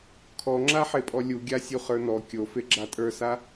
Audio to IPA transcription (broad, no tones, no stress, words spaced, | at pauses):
kʰɔŋ͡ǁa ħepʼɔlʲuɡʲa sʲuχə˞nɔ kʲofe ɡ͡ǁatʼə˞sa